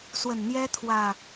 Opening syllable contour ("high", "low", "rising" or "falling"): low